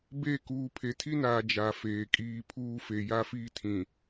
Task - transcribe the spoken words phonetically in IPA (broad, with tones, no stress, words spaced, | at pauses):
be˦˨ kuː˨pʰe˨tʰi˦naː˨ d͡ʒa˨feː˨kʼiː˦ pʰuː˦fe˨ ja˦ fiː˦tʰĩ˨